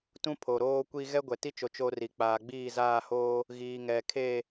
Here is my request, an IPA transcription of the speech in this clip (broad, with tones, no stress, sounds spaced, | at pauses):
t ũ˦ pʰ o˨ ɾ oː˦ kʷ i˦ ɣ ɛ˦ ɡʷ ɛ˨ t i˦ t͡ʃ o˨ t͡ʃ o˦ r i˨ k͡p aː˨ ɡ͡b iː˦˨ z aː˦˨ h oː˦ | ɣ iː˨ ŋ ɛ˨ kʰ e˦˨